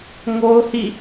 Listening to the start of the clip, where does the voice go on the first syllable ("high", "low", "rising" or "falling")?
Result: high